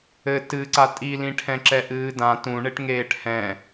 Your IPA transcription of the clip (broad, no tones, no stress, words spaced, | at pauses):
ɘ tɨ ǀatʼilĩ ʈʰɛ̃ǁɛʔɨːdã tũɳeʈ ŋeːʈhɛ̃